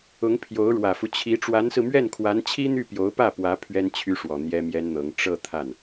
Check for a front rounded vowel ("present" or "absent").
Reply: present